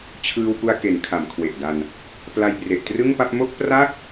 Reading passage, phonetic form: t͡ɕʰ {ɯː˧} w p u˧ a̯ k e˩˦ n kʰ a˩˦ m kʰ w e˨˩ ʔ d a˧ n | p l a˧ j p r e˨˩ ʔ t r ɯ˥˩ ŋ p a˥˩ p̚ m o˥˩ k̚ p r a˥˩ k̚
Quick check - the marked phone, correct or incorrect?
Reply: correct